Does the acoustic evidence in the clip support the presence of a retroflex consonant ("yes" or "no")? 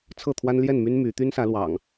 no